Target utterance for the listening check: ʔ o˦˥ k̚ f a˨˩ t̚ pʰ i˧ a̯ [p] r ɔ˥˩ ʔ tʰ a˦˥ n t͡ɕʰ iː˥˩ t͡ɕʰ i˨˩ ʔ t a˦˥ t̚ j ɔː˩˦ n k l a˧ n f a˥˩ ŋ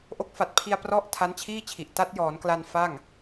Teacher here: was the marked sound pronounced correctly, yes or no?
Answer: yes